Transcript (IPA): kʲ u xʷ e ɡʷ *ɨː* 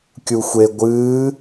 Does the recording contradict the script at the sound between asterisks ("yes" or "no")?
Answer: no